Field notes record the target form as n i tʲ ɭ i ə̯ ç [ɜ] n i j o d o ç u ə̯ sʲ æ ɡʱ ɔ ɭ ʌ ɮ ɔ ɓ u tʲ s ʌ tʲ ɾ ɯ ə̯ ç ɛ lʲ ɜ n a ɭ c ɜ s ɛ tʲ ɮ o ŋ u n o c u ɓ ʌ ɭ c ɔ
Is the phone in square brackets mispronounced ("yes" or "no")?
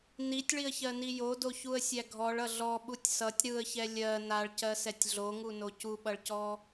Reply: no